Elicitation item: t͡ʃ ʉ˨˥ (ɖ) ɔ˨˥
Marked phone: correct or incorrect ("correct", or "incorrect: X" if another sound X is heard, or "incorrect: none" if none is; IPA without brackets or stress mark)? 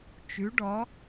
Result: correct